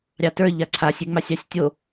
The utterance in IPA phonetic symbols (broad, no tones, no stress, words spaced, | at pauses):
ɾʲɑtə˞ ʎaǀʰasʲ eŋ͡masʲɑsʲtʲo